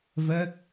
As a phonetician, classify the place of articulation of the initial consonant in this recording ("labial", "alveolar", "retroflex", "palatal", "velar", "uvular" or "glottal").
labial